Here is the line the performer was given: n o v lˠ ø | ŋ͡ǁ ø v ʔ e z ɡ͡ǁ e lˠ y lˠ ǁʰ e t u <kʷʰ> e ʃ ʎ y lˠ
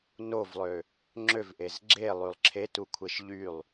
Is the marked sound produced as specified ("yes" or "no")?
yes